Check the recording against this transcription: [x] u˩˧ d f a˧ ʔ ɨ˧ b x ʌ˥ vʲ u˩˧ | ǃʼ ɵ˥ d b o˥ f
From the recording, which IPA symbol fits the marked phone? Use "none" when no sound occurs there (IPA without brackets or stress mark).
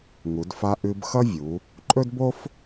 ŋ